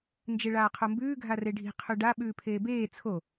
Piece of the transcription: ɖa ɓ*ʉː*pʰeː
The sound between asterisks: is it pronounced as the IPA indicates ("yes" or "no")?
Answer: yes